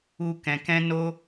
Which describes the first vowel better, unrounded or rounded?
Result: rounded